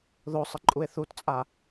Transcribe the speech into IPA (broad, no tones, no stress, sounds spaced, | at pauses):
ð o sˤ ə ǃʼ u e̯ θ u t t͡sʼ a